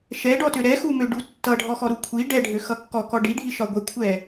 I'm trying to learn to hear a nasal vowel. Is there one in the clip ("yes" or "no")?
no